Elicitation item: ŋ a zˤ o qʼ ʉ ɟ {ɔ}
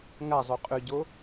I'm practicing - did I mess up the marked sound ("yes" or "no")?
yes